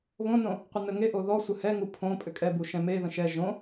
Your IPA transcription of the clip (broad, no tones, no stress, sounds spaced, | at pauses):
β õ n õ | qʷ ə n ə ŋ e ʔ o ð ɔ sʷ ə h ɛ ŋ u pʰ õ pʼ ʏ kʼ ɛ b u ʃ ɛ̃ m e ð ə̃ ʃ ɛ ʒ õ